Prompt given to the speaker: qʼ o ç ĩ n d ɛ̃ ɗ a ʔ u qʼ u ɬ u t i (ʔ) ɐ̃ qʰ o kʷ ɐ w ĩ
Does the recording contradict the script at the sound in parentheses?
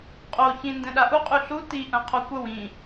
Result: no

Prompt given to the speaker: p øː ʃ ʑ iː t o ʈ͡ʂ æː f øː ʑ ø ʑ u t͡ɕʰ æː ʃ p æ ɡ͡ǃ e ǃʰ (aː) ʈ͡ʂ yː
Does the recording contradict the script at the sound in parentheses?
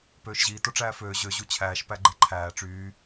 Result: yes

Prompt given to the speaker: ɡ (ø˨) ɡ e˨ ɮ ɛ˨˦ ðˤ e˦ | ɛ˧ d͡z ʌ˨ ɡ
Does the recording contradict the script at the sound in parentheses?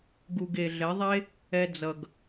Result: yes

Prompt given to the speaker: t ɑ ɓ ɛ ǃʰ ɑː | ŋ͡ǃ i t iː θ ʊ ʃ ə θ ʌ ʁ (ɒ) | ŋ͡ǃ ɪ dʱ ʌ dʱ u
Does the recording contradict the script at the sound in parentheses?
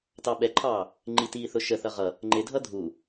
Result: yes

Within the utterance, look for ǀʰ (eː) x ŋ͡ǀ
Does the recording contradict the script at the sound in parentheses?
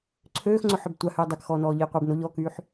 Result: yes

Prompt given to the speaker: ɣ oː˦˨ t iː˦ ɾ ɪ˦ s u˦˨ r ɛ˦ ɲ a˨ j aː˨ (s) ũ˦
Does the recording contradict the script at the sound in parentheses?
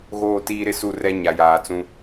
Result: yes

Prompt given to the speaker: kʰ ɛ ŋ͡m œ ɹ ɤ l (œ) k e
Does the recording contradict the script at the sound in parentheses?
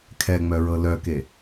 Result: no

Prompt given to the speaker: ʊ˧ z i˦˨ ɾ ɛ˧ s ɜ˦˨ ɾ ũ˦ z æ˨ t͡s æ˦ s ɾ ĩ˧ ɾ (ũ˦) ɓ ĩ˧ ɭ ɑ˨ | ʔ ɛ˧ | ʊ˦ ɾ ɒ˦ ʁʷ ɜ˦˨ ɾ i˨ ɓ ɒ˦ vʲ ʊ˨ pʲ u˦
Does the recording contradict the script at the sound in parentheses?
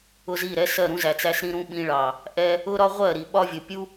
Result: yes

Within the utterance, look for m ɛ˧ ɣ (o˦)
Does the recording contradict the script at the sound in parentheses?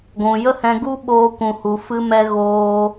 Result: yes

